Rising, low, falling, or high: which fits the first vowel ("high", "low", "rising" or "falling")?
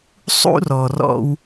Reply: high